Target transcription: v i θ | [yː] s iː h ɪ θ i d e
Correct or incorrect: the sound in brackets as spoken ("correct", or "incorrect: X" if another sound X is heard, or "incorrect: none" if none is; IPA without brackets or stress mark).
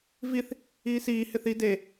incorrect: iː